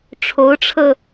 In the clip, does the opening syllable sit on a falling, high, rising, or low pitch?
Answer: rising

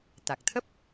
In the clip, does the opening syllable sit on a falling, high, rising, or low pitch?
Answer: low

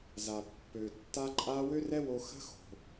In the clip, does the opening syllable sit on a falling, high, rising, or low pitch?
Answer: low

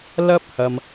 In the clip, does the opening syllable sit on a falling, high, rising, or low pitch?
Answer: high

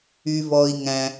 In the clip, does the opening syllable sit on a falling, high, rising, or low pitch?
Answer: low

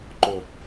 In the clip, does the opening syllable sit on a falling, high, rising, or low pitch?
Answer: low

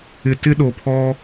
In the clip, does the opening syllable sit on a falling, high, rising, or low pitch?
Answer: low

